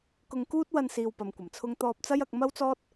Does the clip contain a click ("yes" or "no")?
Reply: no